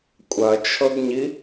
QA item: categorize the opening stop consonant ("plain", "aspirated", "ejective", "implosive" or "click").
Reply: ejective